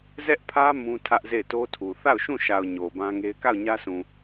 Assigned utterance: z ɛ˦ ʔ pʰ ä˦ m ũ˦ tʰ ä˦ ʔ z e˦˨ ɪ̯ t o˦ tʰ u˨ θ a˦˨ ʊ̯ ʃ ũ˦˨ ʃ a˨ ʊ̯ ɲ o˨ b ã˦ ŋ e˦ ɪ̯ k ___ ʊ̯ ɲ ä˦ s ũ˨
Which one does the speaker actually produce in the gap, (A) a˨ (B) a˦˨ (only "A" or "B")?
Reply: B